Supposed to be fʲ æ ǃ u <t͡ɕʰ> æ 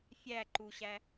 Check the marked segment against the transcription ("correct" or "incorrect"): incorrect